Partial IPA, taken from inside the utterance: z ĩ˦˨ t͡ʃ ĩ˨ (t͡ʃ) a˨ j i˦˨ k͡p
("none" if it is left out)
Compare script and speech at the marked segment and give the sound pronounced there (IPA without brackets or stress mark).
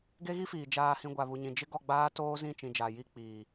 d͡ʒ